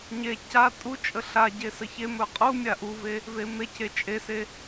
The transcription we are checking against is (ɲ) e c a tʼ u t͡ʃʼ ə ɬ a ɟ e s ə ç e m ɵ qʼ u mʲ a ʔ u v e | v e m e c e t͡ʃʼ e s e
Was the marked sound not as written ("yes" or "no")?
no